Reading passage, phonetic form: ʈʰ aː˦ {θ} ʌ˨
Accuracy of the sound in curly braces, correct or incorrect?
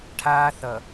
correct